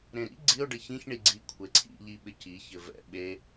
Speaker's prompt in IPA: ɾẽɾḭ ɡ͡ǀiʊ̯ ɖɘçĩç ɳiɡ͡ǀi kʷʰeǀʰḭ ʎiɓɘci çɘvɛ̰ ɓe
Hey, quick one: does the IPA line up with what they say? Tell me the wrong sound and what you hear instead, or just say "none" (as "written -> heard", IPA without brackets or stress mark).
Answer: none